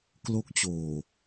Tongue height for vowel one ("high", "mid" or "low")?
mid